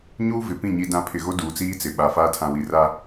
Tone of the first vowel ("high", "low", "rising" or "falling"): high